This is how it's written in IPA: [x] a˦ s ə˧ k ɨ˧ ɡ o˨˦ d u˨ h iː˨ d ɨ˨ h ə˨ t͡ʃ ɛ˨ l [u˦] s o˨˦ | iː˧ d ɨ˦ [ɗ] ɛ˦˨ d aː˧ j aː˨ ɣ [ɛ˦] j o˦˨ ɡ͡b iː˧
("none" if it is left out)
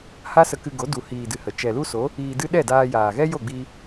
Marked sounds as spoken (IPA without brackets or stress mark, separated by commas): h, u˦, ɗ, ɛ˦